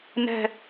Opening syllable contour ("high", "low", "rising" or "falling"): low